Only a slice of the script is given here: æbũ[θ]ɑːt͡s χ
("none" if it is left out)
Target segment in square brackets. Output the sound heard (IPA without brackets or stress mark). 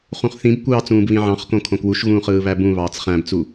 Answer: β